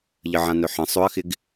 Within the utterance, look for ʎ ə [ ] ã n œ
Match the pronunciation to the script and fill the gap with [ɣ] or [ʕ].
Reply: ʕ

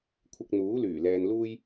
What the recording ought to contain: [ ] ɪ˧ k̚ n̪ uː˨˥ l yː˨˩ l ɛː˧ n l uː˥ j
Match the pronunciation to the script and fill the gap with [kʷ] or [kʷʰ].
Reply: kʷʰ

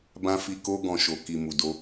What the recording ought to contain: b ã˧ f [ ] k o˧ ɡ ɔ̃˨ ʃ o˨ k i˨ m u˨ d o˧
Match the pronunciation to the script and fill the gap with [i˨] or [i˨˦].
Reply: i˨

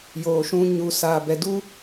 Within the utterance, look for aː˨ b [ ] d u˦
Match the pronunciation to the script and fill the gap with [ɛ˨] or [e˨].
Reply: ɛ˨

